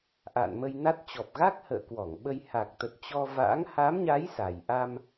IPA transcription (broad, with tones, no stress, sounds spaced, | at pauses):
ʔ a̰ː˧˨ n m ə˧ j n a˦˥ t̚ t͡ɕ ɔ˨˩ p̚ ɣ a˦˥ k̚ h ə̰ː˧˨ k w ɔ˧˩ ŋ ɓ ə˧ j h a˨˩ k̚ t̪ ə˨˩ t̚ t͡ɕ ɔ˧ v a̰ː˧˥ ŋ h a˨˦ m ɲ a˨˦ j s a˨˩ j ʔ a˧ m